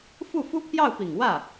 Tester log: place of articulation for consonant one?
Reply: labial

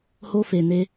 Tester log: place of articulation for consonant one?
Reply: glottal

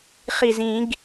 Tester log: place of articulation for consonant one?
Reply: uvular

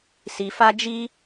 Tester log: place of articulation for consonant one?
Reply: alveolar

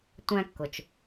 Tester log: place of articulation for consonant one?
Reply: alveolar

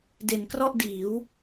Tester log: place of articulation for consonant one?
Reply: alveolar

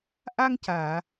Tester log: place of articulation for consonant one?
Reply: glottal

